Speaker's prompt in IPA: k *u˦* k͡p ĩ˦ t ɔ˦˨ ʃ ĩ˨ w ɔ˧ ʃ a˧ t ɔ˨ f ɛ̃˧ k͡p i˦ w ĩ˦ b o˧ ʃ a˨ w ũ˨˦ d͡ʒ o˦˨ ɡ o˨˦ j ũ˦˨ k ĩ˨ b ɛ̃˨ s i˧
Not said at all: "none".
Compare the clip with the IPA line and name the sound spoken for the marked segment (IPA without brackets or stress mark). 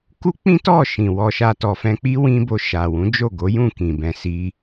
u˦